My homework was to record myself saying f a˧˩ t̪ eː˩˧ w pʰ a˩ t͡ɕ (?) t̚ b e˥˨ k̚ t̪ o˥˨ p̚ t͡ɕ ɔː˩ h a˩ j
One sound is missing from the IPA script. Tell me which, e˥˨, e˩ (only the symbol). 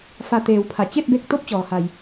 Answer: e˥˨